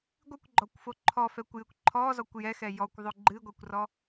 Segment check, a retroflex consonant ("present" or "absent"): absent